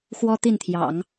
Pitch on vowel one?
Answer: high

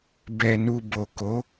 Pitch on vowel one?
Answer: low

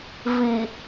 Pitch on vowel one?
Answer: low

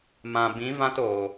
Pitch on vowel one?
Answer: low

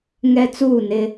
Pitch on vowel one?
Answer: high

